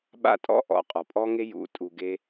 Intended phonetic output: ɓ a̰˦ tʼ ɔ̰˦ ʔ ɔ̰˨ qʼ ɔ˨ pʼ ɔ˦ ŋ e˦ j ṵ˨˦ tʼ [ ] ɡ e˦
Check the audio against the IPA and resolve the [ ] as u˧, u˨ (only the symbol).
u˧